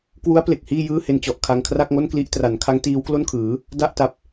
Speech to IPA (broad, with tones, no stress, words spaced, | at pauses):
kwu˦˥a̯ ple˨˩k̚hiː˥˩jɯː˥˩he˧n t͡ɕɔ˨˩ʔ kʰa˧ŋ kʰra˥˩k̚ŋo˥˩nkli˥˩ʔ tra˩˦nkʰa˦˥ŋ tiː˦˥wklo˥˩nkʰɯː˩˦ | da˥˩ʔta˦˥p̚